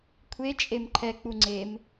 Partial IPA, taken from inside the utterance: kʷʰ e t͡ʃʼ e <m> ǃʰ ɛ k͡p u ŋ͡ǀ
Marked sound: correct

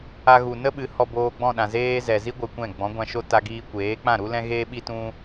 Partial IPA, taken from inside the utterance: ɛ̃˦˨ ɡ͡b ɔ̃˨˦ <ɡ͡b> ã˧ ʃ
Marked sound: incorrect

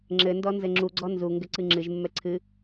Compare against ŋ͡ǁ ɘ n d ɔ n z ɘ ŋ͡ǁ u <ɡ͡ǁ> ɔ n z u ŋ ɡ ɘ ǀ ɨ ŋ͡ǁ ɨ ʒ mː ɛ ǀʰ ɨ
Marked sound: incorrect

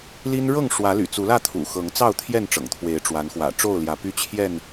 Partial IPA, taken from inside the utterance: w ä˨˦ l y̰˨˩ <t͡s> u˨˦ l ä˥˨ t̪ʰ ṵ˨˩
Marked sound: correct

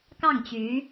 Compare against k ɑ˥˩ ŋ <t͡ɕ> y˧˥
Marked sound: correct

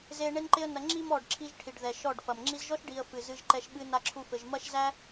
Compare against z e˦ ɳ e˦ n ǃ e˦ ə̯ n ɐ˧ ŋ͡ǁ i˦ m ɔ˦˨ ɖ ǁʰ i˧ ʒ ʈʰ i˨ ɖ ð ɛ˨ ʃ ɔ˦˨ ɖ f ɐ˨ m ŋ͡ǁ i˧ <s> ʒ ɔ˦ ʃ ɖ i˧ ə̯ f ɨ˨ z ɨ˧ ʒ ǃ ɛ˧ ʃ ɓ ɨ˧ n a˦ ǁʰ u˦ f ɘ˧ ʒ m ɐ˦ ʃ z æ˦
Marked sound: incorrect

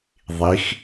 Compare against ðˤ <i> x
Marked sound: correct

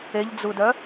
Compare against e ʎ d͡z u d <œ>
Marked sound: correct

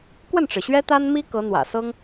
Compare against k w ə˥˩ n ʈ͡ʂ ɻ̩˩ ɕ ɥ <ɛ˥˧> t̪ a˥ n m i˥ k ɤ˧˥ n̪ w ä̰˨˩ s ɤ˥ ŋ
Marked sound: incorrect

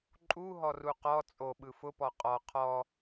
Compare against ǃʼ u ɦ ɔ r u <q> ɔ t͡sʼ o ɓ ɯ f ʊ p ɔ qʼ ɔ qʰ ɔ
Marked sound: correct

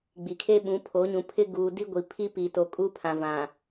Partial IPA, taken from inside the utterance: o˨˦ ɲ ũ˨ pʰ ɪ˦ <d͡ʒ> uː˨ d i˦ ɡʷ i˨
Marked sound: incorrect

